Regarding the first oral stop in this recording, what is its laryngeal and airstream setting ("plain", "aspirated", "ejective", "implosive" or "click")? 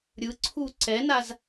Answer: click